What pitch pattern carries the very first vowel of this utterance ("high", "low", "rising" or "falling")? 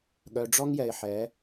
low